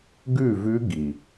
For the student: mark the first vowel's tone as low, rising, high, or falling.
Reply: falling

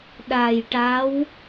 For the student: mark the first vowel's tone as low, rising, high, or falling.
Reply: low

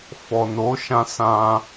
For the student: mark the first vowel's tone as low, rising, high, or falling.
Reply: low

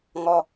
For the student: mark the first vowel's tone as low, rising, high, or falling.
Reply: low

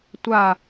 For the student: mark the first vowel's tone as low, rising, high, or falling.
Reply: falling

